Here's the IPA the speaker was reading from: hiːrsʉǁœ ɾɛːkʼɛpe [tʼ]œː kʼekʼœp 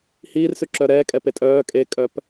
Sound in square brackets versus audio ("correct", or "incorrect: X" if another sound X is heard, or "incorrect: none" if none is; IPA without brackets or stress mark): correct